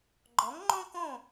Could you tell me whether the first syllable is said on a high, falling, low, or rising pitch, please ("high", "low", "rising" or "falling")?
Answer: rising